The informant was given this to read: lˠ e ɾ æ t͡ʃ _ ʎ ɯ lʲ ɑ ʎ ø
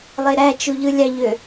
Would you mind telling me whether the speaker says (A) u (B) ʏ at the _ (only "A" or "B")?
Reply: A